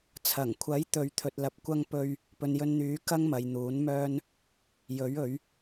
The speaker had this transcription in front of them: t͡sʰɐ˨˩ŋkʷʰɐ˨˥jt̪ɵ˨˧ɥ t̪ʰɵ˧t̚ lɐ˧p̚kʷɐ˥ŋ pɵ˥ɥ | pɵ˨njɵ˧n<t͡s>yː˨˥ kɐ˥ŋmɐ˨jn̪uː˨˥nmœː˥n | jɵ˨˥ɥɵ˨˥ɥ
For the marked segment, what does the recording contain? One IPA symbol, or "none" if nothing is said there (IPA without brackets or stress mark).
n̪